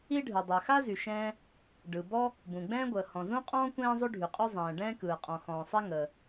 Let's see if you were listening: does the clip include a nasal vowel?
yes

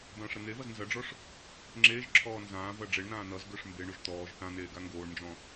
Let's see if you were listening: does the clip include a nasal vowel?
yes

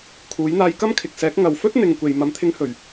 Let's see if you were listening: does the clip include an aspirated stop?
yes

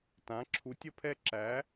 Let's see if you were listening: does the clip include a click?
yes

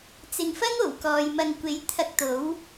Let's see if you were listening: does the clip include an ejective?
no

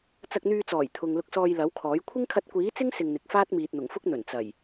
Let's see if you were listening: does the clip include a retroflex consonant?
no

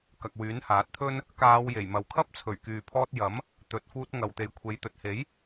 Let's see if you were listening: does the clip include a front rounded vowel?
yes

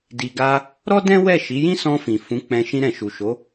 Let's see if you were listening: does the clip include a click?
no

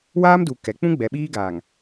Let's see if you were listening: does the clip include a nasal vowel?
yes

